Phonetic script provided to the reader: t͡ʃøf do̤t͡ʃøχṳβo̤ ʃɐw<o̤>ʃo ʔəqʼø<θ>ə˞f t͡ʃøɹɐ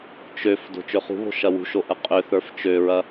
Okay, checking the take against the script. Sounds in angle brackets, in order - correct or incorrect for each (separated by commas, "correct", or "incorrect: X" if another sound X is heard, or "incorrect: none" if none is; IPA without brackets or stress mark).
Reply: incorrect: ṳ, correct